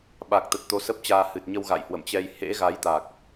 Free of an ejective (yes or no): yes